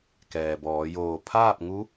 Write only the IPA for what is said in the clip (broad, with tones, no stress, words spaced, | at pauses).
kɛː˩bɔː˩˧joː˧˩ pʰaː˥˨p̚ŋu˧˥